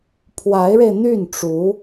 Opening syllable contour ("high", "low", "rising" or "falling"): rising